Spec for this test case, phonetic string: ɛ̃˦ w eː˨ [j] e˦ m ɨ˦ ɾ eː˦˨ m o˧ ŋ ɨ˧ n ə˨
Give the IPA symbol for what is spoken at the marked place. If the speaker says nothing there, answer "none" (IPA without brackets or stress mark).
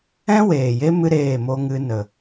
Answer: j